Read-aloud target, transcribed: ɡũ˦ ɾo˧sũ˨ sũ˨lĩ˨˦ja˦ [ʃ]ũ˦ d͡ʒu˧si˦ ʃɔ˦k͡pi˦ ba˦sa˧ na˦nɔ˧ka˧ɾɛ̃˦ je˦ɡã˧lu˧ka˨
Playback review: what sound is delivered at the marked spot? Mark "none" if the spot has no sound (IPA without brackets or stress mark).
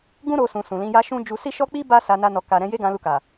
ʃ